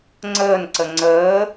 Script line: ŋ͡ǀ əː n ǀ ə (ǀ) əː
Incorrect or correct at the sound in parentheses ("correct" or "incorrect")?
incorrect